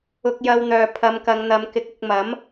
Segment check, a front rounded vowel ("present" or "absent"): present